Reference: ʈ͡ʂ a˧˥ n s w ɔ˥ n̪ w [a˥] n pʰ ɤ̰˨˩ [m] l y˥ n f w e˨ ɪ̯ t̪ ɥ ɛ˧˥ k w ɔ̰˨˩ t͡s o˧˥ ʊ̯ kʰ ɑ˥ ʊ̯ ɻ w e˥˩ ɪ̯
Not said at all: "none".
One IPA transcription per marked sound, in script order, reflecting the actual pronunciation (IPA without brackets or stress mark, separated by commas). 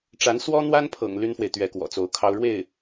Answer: a˥, ŋ